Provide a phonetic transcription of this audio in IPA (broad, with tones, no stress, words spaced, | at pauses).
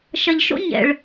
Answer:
ʃɐ˨ʎʃo̰˦ ɲɛ̰˨ɭ